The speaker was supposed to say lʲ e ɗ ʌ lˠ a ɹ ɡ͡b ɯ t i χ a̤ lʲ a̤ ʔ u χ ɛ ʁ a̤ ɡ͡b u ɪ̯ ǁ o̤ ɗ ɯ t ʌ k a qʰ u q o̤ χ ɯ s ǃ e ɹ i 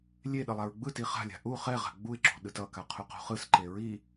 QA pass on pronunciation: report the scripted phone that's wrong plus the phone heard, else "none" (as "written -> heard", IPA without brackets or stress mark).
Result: none